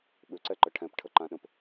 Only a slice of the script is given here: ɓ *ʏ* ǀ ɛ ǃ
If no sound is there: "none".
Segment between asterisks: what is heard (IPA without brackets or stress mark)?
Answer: ʏ